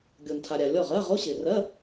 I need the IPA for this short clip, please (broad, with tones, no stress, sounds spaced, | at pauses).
ɡʲ o˨ n tʰ a˨ ɾʲ a˨ lʲ ɔ˥˩ ʁ ɜ˧˥˧ ʁ o˧˥˧ ɕ ɪ˨ r ɜ˧˥˧